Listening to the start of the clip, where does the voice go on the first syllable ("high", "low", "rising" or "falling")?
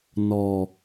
low